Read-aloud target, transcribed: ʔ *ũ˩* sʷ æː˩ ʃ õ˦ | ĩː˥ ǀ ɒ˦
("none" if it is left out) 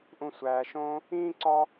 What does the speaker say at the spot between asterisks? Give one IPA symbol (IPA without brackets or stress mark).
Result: ũ˨